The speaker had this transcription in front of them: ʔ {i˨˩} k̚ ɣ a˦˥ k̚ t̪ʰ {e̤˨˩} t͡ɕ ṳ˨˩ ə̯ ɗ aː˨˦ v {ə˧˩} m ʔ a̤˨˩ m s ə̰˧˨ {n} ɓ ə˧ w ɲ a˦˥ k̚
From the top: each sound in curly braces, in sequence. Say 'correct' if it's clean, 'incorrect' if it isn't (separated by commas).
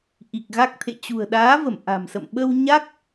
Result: correct, incorrect, correct, incorrect